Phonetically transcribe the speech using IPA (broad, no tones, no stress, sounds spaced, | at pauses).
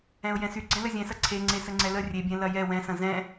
ɛ̃ ʊ̯ j ɛ̃ s y ɡ͡ǀ ɛ̃ l ə zʲ ɛ̃ s ɐ ǀʰ e ŋ͡ǀ e s ə ŋ͡ǀ ɛ l ə rʲ e bʲ ɛ̃ l ɐ j ɛ w ɛ̃ s ɐ̃ z ɛ̃